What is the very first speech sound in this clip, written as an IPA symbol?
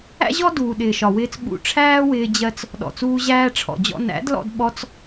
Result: æ̰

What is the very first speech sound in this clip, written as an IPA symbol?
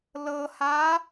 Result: l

